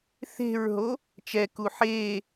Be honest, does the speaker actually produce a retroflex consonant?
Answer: no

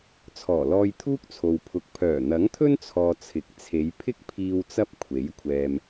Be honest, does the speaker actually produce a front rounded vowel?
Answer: yes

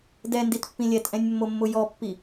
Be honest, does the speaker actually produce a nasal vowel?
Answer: yes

